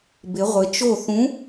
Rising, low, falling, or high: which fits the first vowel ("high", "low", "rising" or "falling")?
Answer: rising